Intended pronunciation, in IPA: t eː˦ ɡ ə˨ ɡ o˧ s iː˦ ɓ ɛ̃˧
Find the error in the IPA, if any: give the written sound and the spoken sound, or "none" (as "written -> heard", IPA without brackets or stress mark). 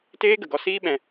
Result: o˧ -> ɔ˧